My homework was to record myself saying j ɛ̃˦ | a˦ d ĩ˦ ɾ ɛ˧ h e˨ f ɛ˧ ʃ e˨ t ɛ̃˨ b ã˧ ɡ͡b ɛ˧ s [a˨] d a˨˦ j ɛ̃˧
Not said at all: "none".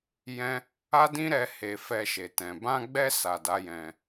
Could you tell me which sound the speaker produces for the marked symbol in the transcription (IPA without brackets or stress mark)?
a˨